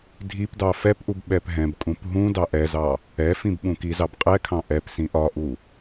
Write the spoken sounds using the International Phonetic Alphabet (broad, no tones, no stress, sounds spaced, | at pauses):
dʱ i p d ɑ f ɛ p ʔ u b ɓ ɛ p ɦ ɛ̃ b kʼ ũ p ɦ ũ d ɑ ʔ ɛ z ɑ | ɛ f ĩ b ɓ ũ k i z ɑ b qʼ ɛ kʰ ɑ̃ ʔ ɛ p s ĩ ʔ ɒ ʔ u